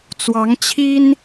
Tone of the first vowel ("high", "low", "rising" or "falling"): rising